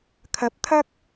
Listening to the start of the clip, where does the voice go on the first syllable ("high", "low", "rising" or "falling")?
rising